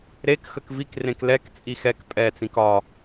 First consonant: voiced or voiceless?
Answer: voiced